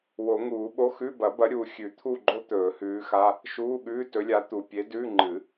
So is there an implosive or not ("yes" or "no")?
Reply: yes